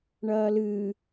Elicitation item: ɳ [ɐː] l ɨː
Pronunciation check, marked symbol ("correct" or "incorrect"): correct